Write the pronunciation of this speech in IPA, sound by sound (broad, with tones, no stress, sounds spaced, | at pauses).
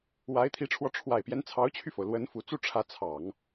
w a˧˥ ɪ̯ t̪ʰ i˧˥ ʈ͡ʂʰ w ɔ˧ ʈ͡ʂʰ w a˨˩ ɪ̯ p j ɛ˦ n t͡sʰ ɑ˧˥ ʊ̯ t͡ɕʰ y˧ f o˩ ʊ̯ l w ə˧˥ n f u˨˩ t͡s u˥˩ ʈ͡ʂʰ ä˧˥ t͡sʰ ɑ˨˩˦ ŋ